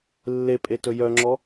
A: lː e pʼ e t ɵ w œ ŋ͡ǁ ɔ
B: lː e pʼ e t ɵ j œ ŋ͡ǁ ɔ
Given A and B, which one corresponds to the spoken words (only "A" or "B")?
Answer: B